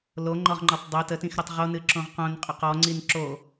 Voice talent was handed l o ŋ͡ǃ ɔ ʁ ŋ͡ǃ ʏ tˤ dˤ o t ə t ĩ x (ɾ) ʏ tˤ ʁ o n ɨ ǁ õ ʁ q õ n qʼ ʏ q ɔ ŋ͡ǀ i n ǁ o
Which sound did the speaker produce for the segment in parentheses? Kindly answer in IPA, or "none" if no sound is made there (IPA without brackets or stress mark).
ɾ